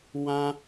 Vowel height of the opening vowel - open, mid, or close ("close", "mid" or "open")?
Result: open